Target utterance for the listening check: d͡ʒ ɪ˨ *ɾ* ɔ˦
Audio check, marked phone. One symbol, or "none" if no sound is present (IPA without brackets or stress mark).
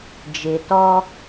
t